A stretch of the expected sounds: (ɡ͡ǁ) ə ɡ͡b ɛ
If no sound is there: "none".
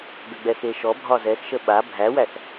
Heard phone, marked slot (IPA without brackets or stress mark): ɡ